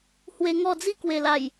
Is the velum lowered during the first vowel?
no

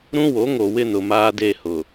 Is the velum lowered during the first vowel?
yes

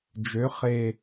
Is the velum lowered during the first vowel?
no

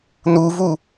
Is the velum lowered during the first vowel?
no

